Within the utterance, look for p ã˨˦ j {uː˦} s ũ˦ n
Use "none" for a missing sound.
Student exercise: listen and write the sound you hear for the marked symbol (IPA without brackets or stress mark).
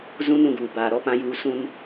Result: uː˨˦